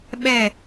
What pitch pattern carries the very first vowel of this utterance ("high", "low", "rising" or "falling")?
falling